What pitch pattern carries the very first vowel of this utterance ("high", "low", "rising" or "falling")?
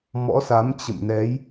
rising